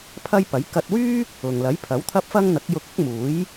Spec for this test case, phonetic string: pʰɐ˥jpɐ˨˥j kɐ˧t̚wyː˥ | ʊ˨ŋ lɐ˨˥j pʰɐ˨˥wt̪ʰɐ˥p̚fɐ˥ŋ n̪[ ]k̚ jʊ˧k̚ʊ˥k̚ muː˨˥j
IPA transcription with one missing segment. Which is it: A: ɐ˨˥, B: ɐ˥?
A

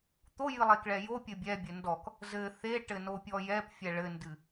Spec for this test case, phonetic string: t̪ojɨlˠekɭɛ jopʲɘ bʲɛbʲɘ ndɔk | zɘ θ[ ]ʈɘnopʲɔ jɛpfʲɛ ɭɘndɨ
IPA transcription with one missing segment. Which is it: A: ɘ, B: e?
B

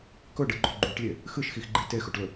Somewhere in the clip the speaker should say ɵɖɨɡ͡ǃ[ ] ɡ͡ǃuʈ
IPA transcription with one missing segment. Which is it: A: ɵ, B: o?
B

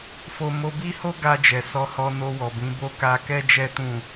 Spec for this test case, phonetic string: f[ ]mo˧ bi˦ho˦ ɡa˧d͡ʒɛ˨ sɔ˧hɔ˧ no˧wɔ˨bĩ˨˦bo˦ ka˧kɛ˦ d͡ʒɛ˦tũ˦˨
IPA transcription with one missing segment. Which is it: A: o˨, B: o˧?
B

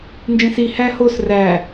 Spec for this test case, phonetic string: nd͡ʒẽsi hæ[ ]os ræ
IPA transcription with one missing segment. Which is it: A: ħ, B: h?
B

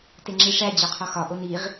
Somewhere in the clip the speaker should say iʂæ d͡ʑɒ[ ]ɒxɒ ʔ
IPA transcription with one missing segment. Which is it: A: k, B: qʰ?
B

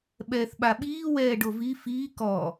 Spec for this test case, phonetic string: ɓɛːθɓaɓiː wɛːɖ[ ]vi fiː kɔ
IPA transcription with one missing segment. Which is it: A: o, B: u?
A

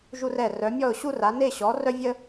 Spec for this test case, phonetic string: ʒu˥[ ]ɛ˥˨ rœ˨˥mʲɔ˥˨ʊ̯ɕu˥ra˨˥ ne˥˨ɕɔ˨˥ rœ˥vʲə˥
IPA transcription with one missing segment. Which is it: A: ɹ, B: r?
B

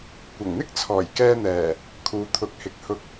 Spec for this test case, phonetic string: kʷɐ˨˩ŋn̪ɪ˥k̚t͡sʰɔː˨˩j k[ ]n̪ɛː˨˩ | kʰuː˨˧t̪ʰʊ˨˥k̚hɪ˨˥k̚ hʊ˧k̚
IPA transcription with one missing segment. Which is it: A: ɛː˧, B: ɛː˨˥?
A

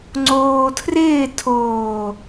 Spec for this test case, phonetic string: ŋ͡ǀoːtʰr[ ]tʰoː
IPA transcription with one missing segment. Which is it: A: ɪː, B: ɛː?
A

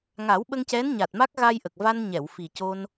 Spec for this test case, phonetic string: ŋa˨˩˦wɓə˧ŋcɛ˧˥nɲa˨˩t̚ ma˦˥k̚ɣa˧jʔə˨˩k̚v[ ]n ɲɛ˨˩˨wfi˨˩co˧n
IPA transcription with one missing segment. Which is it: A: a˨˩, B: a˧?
B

